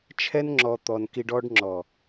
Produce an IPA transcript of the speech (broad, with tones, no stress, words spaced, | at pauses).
t͡ʃʰɛ˧nŋ͡ǁɔ˨ t̪ɔ˨nki˧ɖ ɔ˧ɖŋ͡ǁɔ˨